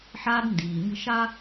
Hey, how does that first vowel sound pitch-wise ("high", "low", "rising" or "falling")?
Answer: high